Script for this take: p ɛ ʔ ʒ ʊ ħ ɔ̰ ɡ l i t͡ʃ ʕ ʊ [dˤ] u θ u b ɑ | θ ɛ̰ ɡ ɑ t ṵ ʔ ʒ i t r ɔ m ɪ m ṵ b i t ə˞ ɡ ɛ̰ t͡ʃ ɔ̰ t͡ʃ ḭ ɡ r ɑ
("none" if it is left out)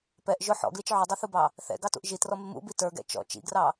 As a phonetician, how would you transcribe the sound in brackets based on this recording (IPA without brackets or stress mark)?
dˤ